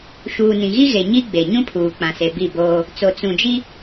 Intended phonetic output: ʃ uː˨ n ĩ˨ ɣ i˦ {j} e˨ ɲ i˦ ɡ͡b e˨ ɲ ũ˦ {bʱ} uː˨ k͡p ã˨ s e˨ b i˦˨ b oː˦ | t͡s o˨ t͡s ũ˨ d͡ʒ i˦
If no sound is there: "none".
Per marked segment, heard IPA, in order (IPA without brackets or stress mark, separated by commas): ɣ, pʰ